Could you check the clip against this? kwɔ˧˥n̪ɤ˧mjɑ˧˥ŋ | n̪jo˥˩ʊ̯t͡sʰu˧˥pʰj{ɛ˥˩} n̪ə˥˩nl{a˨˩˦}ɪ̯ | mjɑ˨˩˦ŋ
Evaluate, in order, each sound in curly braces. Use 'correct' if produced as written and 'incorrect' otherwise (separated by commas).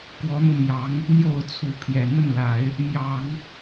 incorrect, correct